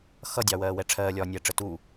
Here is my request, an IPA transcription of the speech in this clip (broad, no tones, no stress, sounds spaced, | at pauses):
x ʌ dʲ ɑ w ɜː w ɛ ʈ͡ʂʰ ɜː lʲ ɒː nʲ ɛː ʈ͡ʂ ə t u